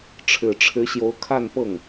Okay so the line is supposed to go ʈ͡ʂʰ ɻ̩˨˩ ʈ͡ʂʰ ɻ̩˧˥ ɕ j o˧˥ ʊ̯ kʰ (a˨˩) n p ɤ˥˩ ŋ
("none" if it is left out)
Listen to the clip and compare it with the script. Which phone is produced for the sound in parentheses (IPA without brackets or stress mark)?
a˥˧